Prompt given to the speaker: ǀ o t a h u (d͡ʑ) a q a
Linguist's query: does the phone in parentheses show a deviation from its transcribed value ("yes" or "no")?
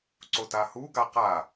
yes